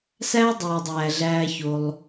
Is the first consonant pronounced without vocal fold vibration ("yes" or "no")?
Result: yes